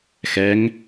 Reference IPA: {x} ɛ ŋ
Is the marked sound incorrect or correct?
correct